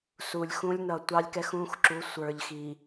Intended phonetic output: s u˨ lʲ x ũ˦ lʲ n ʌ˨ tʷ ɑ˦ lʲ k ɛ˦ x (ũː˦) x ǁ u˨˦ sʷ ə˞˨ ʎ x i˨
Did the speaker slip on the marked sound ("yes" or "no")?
no